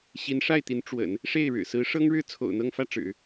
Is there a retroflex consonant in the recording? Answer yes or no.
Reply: yes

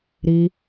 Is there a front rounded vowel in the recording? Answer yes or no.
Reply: no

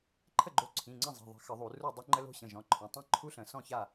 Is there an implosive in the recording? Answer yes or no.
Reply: no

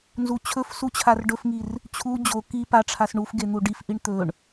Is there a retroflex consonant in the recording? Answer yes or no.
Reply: yes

